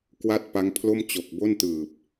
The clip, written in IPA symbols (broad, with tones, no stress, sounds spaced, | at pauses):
k w a˥˩ t̚ p a˦˥ ŋ pʰ l o˥˩ m t͡ɕ o˨˩ k̚ b o˥˩ n t ɯː˨˩ p̚